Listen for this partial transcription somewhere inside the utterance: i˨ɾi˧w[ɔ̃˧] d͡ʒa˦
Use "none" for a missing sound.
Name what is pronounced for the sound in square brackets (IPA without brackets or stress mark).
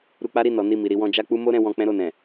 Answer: ɔ̃˧